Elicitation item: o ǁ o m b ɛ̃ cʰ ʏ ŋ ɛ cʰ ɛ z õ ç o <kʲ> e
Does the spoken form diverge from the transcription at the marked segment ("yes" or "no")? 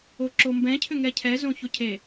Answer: yes